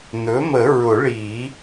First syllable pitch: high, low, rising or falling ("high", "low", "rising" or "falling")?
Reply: rising